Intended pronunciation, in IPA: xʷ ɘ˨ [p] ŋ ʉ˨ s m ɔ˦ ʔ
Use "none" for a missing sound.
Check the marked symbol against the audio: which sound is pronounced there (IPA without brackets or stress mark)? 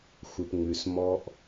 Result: p